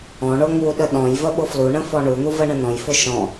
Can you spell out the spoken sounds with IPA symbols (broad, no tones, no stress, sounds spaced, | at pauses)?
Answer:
ɔ̃ ɳ o ŋ u ɗ ə ɗ ɔ̃ j v ə ɓ ʊ f l u ɳ ə̃ f ɔ ɳ u n̪ u v ə ɳ ə̃ n ɔ̃ j f ʊ ʃ ɔ̃